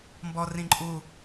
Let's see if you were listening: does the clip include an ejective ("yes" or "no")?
yes